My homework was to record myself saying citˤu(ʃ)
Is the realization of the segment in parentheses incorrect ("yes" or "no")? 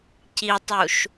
no